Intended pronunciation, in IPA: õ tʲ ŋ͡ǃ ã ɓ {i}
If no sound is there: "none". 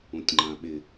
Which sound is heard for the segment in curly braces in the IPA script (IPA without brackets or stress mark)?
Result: ɪ